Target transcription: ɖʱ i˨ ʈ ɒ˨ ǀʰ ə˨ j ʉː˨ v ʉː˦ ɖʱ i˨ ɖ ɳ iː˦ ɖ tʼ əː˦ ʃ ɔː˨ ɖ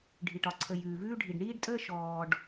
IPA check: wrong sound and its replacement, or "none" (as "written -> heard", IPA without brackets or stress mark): none